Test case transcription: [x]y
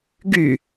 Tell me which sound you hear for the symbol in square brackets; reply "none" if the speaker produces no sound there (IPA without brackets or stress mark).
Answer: ɡ